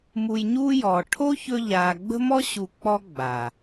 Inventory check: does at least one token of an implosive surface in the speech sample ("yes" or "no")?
no